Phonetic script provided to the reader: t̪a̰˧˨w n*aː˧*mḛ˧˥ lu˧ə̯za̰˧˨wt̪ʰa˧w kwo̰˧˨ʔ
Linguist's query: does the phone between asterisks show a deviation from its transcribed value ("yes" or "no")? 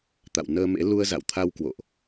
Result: yes